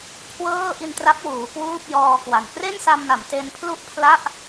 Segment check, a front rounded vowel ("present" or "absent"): absent